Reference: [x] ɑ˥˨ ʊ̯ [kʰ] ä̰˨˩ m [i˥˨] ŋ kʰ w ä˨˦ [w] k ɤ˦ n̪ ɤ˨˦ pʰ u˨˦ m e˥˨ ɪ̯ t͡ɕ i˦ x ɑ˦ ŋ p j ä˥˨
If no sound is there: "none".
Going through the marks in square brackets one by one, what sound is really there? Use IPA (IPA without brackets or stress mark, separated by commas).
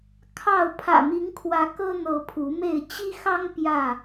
kʰ, pʰ, i˨˦, none